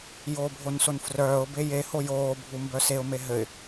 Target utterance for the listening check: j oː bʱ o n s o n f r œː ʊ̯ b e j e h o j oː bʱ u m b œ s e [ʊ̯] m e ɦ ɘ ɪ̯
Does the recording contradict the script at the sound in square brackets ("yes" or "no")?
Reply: no